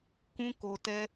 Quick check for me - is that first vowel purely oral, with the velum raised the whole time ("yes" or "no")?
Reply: no